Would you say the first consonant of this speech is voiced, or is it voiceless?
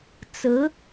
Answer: voiceless